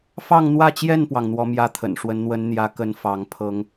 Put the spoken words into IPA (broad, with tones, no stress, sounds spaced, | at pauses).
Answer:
f ɑ˥˧ ŋ n̪ w ä˥˧ t͡ɕ j ɛ˥˩ n p w ɑ˩ ŋ n̪ w ɔ˧˥ m j ä˥˩ t̪ʰ ə̰˨˩ n ʂ w ə˧˥ n n̪ w ə˧˥ n n̪ j ä˧˥ k ə˧˥ n f ɑ˧˥ ŋ pʰ ɤ˥ ŋ